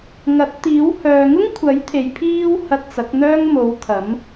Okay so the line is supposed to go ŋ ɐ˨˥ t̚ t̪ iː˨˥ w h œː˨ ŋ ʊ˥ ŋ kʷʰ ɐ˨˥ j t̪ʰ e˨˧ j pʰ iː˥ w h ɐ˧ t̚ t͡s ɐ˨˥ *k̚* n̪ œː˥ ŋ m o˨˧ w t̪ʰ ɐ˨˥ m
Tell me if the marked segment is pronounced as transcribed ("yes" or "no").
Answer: yes